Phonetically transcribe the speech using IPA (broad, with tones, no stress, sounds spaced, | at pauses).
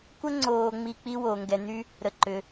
kʷ ə˥ ŋ͡ǀ oː˧ ŋ͡m i˧ k͡p i˥ w oː˧ ŋ ɡ ɛ˧ n̪ y˥ | ɾ ə˧ ǃ ʏ˧